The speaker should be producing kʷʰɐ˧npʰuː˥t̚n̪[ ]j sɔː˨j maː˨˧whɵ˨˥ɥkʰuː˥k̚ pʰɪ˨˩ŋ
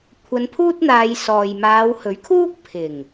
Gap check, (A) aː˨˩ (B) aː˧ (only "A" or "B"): B